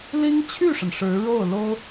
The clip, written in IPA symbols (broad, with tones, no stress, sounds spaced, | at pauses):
l i˥ ŋ t͡ɕʰ y˥˩ ʂ ə˩ n ʂ ɻ̩˧˥ ɻ o˥˩ ʊ̯ l o˥ ʊ̯